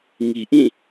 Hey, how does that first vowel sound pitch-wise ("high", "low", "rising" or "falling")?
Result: low